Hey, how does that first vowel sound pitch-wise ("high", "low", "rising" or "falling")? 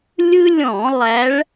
high